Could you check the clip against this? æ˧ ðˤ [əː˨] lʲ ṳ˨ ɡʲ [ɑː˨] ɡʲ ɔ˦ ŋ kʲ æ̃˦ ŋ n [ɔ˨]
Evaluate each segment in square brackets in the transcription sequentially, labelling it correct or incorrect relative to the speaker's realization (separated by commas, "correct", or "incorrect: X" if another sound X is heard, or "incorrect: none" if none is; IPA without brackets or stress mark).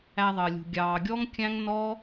correct, correct, incorrect: ɔ˦